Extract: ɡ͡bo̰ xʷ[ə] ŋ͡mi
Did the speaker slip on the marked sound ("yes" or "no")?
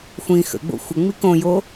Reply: no